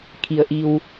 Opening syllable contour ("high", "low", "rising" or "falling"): low